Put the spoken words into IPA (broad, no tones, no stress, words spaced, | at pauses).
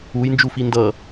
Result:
ujnd͡ʒufi ndʌ